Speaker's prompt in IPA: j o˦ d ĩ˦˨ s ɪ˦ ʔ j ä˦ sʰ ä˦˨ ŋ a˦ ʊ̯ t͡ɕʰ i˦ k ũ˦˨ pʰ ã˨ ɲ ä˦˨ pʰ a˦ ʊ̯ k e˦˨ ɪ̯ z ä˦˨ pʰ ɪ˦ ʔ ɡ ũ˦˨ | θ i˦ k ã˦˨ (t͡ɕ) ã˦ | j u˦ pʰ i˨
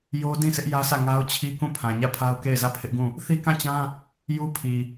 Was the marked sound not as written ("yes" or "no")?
no